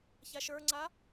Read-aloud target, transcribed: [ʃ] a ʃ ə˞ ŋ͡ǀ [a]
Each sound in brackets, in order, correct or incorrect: incorrect, correct

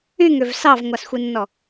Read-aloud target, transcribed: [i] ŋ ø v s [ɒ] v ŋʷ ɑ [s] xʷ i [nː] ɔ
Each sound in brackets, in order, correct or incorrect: incorrect, incorrect, correct, correct

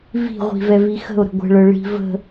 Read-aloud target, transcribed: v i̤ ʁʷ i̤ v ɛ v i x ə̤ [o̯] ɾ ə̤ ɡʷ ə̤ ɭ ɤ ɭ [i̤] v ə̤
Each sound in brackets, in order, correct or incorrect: correct, correct

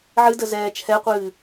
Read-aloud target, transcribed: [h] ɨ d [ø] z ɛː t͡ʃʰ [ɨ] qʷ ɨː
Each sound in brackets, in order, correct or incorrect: incorrect, incorrect, incorrect

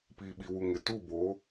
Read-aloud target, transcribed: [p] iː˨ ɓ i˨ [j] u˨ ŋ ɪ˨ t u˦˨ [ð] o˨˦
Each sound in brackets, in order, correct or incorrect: correct, incorrect, incorrect

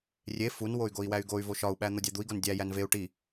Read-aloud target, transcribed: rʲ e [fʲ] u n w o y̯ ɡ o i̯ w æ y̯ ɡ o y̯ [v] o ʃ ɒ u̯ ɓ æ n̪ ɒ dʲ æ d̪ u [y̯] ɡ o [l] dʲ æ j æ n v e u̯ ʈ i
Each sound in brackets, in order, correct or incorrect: incorrect, correct, incorrect, incorrect

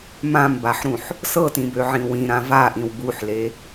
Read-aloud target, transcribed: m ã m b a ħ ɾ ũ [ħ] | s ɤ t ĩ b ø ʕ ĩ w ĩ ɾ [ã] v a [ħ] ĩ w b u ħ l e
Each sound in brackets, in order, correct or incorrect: correct, correct, incorrect

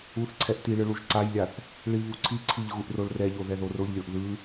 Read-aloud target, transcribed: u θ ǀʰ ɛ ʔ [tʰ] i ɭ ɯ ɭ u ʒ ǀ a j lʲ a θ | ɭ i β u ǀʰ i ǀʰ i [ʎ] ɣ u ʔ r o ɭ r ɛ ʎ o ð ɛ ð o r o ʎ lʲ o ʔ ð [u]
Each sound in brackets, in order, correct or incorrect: incorrect, correct, incorrect

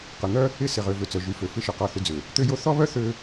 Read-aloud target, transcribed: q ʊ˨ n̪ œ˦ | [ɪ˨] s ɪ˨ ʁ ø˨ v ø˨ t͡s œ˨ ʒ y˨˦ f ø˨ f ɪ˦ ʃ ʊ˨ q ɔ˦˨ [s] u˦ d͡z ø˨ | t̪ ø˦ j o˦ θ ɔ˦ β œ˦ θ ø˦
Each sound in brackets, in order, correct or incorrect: incorrect, incorrect

